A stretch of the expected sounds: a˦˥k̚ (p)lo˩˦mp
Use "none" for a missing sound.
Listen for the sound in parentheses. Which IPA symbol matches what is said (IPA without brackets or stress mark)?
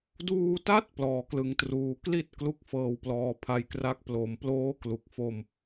p